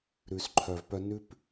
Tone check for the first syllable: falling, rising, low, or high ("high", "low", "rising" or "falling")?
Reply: low